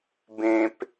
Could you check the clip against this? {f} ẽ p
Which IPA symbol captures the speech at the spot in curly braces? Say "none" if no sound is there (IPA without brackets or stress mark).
b